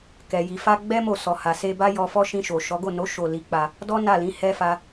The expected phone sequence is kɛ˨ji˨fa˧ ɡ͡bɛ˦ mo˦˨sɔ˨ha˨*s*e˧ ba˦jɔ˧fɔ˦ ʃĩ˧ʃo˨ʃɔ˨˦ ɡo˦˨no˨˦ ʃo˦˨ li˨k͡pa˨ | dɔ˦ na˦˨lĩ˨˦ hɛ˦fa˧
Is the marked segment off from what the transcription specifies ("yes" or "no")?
no